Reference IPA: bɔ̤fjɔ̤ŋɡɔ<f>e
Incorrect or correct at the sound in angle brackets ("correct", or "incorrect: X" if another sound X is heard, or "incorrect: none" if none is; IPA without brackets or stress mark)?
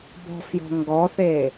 incorrect: θ